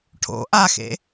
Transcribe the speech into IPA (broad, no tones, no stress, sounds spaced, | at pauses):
ʈʰ o̰ ʔ a x ḛ